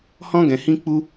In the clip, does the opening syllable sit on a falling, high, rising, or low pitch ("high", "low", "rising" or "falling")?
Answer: high